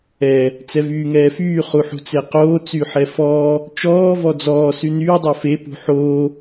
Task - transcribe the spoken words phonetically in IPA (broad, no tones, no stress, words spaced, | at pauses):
ɛ | t͡sɛvyːŋɛːfyː χuħṳt͡seqoː t͡syħɛfɔː | t͡ʃɔː vɔd͡zɔː synyː dˤofe pṳħoː